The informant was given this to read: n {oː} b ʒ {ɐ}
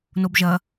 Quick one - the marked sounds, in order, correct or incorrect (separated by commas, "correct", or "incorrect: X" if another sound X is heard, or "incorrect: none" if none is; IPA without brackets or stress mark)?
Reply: incorrect: o, correct